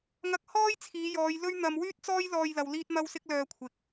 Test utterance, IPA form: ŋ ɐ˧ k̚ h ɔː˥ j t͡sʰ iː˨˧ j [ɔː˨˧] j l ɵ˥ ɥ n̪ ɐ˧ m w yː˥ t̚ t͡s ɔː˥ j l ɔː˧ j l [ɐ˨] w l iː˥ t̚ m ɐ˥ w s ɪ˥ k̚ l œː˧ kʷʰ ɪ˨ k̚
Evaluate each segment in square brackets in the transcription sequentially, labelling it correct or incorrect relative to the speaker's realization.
correct, correct

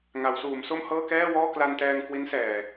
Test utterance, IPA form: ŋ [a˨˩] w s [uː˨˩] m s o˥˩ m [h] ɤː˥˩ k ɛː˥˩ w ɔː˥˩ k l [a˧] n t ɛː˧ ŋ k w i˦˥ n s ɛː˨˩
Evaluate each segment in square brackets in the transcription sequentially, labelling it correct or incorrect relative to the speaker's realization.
incorrect: a˩˦, incorrect: uː˩˦, correct, correct

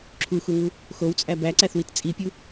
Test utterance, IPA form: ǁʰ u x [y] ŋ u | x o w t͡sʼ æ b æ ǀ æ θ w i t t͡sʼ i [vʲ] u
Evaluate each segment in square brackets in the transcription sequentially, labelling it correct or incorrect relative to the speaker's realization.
incorrect: u, incorrect: pʲ

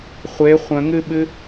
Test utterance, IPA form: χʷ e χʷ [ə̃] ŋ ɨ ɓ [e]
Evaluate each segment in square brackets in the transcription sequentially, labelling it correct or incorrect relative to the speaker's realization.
correct, incorrect: ɨ

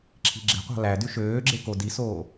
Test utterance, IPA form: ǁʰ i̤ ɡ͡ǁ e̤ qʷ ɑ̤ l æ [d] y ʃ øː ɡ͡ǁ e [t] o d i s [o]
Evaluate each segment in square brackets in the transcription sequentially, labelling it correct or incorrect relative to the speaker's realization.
correct, incorrect: k, incorrect: oː

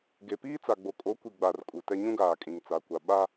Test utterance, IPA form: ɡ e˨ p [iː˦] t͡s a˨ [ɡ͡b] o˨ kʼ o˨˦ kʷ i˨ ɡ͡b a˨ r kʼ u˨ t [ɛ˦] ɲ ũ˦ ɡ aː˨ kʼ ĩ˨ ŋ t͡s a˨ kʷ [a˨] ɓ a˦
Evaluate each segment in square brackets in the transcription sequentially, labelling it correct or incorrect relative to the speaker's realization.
correct, correct, correct, correct

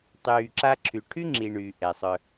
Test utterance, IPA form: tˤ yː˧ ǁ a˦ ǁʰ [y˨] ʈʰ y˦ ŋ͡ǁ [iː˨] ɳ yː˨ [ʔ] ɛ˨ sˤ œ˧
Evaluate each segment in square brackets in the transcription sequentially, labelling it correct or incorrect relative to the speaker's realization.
correct, correct, correct

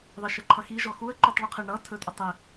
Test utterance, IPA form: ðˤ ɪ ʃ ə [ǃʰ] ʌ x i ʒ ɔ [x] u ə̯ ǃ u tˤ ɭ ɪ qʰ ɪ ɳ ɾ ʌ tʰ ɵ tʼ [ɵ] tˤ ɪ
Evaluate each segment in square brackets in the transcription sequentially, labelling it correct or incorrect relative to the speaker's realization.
correct, correct, incorrect: ə

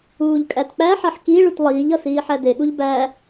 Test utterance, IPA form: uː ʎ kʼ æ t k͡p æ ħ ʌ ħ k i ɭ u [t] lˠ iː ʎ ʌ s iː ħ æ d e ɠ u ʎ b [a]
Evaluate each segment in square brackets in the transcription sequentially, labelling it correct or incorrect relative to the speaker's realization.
correct, incorrect: æ

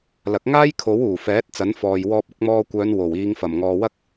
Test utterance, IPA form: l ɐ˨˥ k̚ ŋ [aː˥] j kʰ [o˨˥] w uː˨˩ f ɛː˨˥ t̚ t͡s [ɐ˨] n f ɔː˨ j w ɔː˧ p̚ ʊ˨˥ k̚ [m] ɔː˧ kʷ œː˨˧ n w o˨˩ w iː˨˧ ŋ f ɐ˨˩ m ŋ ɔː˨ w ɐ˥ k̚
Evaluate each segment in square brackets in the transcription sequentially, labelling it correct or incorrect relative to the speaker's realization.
correct, correct, incorrect: ɐ˨˥, correct

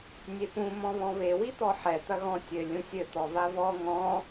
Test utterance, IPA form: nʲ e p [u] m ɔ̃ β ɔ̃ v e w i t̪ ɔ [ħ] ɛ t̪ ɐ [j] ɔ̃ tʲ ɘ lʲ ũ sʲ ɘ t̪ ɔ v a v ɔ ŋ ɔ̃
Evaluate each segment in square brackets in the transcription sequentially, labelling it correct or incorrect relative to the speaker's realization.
incorrect: ũ, correct, incorrect: ɣ

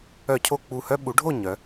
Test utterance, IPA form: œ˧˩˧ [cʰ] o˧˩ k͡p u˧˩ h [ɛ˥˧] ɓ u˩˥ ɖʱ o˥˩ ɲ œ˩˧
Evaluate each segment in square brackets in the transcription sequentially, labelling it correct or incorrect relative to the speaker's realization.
correct, incorrect: œ˥˧

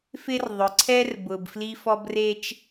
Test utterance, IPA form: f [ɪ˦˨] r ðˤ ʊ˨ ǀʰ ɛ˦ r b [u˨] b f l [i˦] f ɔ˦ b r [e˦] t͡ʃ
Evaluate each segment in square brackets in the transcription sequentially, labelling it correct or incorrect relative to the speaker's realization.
incorrect: ɪ˦, incorrect: ʊ˨, correct, correct

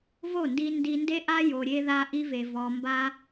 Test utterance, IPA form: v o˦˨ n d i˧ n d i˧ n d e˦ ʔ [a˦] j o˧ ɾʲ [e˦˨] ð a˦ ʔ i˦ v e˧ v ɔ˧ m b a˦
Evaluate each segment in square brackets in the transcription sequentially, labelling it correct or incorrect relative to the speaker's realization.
correct, incorrect: e˦

